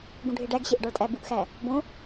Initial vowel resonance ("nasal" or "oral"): nasal